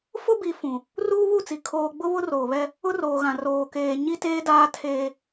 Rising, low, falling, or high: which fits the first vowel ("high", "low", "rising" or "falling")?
high